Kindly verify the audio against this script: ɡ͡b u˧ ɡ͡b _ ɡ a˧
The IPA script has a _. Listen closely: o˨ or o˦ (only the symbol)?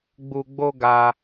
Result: o˦